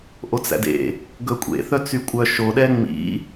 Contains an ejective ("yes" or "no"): yes